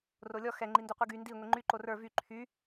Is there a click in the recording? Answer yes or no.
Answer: yes